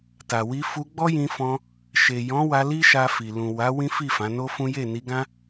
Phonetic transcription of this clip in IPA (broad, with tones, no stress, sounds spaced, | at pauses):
t a˨ w i˧ f u˧ ɡ͡b ɔ˦ j ĩ˧ f ɔ̃˧ | ʃ e˨ j ɔ̃˨˦ w a˧ l i˦ ʃ a˧ f i˨ l ũ˨ w a˨˦ w ĩ˦ f i˦˨ f ã˨˦ n o˦ f ũ˦ j e˦˨ n i˧ ɡ ã˦